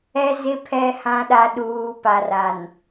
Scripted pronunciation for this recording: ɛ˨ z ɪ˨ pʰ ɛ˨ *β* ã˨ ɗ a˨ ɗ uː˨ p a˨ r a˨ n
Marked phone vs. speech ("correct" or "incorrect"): incorrect